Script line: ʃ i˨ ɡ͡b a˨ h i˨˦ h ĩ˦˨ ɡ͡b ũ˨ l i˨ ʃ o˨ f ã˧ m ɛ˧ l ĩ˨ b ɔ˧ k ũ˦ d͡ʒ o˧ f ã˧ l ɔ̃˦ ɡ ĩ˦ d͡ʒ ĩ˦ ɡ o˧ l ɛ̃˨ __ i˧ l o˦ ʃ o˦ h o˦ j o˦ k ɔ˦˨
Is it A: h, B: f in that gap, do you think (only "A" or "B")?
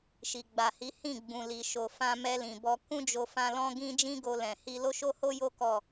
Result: A